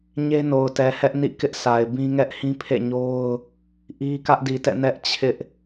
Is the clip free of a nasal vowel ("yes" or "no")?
no